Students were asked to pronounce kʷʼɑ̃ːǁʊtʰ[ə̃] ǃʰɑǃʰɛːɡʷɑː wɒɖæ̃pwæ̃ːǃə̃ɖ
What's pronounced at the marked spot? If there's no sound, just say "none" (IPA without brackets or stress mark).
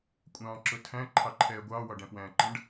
æ̃